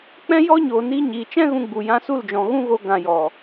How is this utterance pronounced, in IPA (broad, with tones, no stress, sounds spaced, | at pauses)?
k͡p ɛ̃˦ j ɔ˦ ɲ oː˨ n iː˧ ɲ iː˨ t͡ʃ ɛ̃˦ ɣ ũ˧ ɡ͡b u˨ j ã˧ s u˦˨ l d͡ʒ ɔ̃˨ ɣ ũ˦ ɣ o˧ ɡ ã˨ j ɔ˨